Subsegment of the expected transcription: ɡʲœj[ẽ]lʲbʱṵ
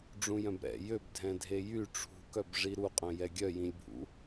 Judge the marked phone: incorrect: ĩ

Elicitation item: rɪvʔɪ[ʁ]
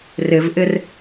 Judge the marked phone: incorrect: r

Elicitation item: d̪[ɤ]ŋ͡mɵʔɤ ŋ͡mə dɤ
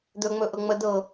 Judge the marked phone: incorrect: ɵ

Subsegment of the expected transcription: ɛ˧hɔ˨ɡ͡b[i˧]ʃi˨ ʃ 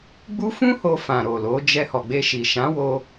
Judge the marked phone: incorrect: e˧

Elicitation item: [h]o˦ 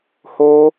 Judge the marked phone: correct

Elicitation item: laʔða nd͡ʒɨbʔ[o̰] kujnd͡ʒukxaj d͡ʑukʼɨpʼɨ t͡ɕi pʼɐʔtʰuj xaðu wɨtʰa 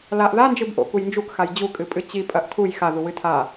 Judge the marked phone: correct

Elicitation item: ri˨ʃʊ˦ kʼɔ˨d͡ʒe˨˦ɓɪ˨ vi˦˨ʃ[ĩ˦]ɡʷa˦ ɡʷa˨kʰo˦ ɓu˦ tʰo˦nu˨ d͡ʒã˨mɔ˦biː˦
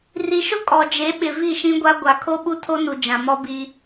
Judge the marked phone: correct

